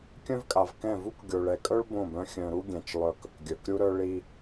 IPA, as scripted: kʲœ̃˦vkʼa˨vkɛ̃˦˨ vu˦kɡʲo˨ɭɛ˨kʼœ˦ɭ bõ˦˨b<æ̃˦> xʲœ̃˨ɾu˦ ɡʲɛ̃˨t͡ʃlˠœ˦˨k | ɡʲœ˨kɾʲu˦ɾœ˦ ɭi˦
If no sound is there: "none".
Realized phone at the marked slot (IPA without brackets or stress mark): œ̃˦